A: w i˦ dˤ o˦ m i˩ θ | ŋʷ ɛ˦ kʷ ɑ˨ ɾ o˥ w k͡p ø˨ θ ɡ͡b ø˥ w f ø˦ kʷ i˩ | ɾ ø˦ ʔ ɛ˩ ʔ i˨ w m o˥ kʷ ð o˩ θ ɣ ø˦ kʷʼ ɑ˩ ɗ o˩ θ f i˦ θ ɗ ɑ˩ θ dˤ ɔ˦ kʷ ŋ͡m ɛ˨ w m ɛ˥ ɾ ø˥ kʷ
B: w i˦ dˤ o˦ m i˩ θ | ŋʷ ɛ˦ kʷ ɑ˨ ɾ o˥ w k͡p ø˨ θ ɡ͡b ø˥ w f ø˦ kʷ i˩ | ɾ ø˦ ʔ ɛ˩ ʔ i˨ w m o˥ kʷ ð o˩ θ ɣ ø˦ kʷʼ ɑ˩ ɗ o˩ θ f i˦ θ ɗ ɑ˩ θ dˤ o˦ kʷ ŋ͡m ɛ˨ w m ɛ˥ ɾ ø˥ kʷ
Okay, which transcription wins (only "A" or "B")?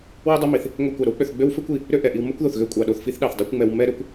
B